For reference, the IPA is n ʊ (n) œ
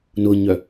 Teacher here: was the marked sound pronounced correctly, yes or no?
no